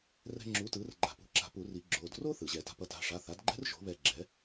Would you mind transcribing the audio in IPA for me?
r ɛ̤˧ ŋ͡ǁ u˩˥ t ɯː˩˥ r ɡ͡ǃ a̤˨˩˦ p ṳ˩˧˩ ǁ a̤˨˩˦ p u˨˩˦ r i˨˩˦ ɡ͡ǁ oː˩˧˩ d r oː˥ θ ɯː˩ ʑ ɛ˨˩˦ t a̤˩˥ p ʌ˩˥ t a̤˩˧˩ ʂ a˩˧˩ θ a˩˥ d ɡ͡ǃ ɛ̤˥ r ʒ o̤˩˥ β ɛː˧ ɡ͡ǁ ɛ˩˥

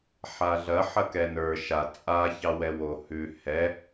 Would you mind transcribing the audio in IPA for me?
ħ a ɮ ɐ ħ ɐ k ɛ n ə˞ ʃ a t͡sʼ a ç ɑ w ɛ w o h ʉ h ɛ

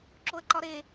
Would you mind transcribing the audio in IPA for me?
ǁ o ə̯ ǃ ɒ ɾ e

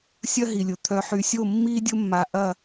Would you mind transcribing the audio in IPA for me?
sʲ ɐ˦ ɦ i˨ lʲ ʊ˨ t̪ʰ œ˨ ħ y˨ sʲ o˦˨ mː iː˦ dʲ ʊ˦ mː a˨ ʔ ɐ˦˨

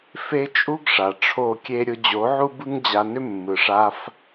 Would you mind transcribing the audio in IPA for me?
f e˦ t͡ʃʼ u˦ ɡ ʂ a˨ ʈ͡ʂʰ o˦˨ kʲ e˦ ɾʲ ʊ˧ d͡ʑ o˨˦ ʕ u˦ b ɯ˦ ŋ d͡ʑ a˧ n ʏ˦ mː ɯ˨ ʂ a˧ f

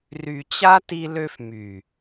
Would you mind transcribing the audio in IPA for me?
r y˨ t͡ɕ a˦ t i˦ l ø˦ f m y˨

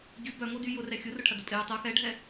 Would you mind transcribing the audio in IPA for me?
ɟ y b œ ŋ o d y j ʊ r ɛ xʲ ʊ r ʊ ʈʰ ɐ d ə pʼ ɪ j u tˤ u x ɛ ɖʱ ɛ

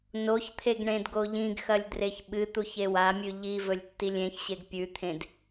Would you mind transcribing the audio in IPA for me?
n o ç t̪ʰ e ɡ ɳ ẽ d ɡ o ʎ ĩ ɡ x ɐ lʲ d r e ç ɓ ɨ t̪ u ç e w a mʲ ʉ ʎ i v ɵ lʲ tː i lʲ ẽ ç ɕ e ɡ pʲ ʉ t̪ʰ ẽ d

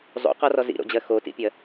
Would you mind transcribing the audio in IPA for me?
zˤ ṵ q ɔ r ɔ z ḭ ɾ o̰ d͡ʑ ɜ x o t ḭ pʲ ɜ

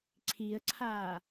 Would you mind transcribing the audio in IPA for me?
ǀʰ i ə̯ ǀʰ aː

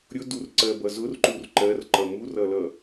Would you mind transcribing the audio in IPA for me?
ɾʲ ʊ d u r ǀ ɜ b ʌ z ʊ r ǃ u r ǃ ɜ r ǃ ʌ m u r ʌ l ʌ

